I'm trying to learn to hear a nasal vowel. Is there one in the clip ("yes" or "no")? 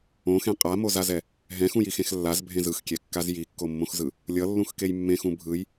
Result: yes